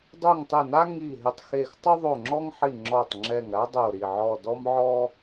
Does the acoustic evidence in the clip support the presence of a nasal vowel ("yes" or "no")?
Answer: no